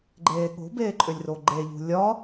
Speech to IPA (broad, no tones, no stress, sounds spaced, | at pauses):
ɡ͡ǃ eː ɠ o̤ b eː ǃʼ ʏ lʲ r o ɡ͡ǃ e ʎ ṳ lʲ ɒ